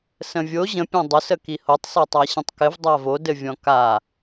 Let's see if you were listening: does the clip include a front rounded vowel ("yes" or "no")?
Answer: no